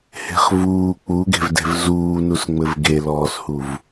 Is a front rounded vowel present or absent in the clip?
absent